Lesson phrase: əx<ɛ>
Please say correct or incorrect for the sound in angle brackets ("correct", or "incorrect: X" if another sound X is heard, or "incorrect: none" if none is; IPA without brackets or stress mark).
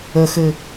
incorrect: ɘ